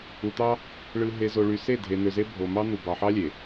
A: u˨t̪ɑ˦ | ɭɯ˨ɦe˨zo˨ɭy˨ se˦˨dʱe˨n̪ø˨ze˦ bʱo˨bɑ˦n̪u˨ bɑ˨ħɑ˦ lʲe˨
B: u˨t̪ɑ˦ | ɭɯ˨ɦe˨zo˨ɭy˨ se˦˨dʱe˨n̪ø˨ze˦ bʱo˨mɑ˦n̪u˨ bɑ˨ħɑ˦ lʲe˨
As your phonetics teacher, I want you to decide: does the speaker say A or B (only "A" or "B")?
B